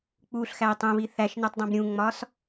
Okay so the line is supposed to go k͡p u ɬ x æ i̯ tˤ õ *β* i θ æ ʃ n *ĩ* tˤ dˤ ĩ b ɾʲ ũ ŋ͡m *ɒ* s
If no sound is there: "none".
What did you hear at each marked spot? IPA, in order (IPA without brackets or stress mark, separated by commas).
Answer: β, i, ɒ